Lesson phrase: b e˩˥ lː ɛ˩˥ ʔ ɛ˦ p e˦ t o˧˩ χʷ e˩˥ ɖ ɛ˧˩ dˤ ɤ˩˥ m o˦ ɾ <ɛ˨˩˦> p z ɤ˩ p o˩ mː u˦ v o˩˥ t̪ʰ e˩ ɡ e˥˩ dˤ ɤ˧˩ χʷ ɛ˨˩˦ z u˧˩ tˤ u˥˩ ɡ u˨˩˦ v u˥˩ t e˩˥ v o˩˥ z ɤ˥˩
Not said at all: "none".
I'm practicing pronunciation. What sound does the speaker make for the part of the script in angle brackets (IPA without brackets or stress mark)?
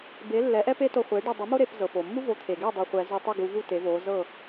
e˨˩˦